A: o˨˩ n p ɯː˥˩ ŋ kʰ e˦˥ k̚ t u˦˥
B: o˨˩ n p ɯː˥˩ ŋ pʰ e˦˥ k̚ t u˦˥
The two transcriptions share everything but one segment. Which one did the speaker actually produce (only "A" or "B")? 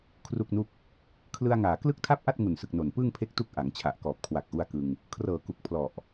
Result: B